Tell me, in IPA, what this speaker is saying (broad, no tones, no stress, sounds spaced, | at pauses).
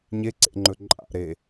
ɲ e ǀ ḛ ŋ͡ǃ ɵ ǃʼ a̰ ɾ e